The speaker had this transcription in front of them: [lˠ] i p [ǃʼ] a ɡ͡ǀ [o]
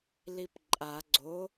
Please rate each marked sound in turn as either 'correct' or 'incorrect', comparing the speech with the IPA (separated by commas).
incorrect, correct, correct